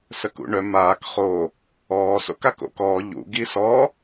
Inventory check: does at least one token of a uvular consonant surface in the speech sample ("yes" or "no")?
yes